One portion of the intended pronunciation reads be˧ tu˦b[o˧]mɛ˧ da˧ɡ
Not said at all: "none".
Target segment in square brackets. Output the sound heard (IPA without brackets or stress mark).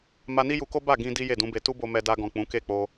o˧